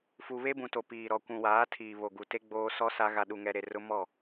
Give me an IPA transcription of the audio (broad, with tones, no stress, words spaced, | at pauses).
fu˨βe˦bũ˨ to˨piː˨ɾɔ˨ kʷũ˨waː˨˦ tʰiː˨βo˨ɡu˨te˦ ɡ͡boː˦sɔ˦sa˦ ɣa˨ɗu˨ŋɛ˨ ɾe˨rʊ˦mɔ˦˨